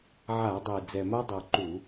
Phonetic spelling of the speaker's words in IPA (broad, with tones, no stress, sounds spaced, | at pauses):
ʕ a˧˩˧ dˤ e˨˩ d͡z ɛ˨˩ m a˦ dˤ o˨˩ ǃ u˧˩˧